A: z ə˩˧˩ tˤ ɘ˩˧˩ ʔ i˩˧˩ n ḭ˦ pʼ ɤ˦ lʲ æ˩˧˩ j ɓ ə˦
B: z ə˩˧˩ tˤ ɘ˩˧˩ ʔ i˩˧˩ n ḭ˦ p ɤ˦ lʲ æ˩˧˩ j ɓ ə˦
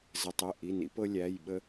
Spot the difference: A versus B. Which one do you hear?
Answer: B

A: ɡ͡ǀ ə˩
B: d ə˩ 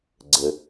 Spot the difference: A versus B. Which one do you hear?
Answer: A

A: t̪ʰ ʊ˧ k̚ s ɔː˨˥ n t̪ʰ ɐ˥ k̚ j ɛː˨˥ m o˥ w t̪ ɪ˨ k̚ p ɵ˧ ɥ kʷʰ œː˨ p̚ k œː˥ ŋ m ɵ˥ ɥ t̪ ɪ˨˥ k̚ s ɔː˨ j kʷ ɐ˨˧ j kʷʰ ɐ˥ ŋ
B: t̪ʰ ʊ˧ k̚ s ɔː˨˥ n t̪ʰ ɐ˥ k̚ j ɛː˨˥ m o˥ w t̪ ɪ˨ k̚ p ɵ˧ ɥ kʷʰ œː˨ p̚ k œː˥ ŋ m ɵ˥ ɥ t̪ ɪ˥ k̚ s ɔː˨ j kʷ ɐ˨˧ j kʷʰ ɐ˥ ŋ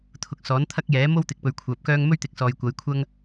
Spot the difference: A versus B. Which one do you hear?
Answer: A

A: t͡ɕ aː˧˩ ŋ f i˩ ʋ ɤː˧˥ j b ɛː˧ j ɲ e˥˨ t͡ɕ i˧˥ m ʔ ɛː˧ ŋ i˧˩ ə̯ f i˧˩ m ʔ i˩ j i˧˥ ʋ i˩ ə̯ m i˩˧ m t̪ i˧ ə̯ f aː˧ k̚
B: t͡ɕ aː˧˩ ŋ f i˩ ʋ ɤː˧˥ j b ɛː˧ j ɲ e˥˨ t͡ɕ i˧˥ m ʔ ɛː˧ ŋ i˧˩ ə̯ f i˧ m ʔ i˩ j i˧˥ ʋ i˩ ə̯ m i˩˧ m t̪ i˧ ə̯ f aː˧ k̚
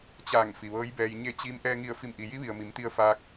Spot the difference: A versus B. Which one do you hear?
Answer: A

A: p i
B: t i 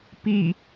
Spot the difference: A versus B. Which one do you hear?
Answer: A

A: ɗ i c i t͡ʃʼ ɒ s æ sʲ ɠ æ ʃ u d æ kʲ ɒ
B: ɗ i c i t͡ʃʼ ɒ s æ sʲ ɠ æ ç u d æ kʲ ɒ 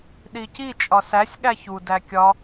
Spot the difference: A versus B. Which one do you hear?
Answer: B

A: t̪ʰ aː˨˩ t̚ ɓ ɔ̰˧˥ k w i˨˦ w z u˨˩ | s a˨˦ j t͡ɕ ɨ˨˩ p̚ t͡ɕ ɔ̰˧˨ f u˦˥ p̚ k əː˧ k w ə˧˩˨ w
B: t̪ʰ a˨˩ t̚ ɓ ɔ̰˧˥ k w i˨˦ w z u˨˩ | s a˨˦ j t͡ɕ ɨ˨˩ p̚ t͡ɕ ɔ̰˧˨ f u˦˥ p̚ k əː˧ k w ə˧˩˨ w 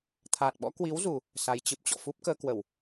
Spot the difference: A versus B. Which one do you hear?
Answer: A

